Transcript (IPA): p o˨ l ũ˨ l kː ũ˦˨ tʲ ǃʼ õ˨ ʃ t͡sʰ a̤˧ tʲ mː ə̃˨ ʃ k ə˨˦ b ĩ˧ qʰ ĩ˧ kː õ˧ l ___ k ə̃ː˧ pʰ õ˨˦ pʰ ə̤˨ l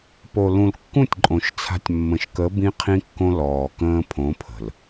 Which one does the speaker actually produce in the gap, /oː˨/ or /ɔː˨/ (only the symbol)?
ɔː˨